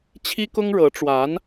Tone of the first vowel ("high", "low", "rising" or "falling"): high